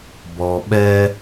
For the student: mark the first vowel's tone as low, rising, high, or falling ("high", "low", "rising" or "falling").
low